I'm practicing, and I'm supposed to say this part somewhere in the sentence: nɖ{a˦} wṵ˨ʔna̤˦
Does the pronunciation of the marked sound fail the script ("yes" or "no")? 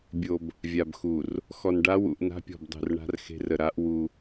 no